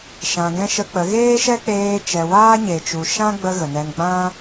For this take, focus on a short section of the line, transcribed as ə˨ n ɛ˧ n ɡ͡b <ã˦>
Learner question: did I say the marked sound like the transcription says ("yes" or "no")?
yes